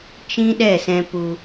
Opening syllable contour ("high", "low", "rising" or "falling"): high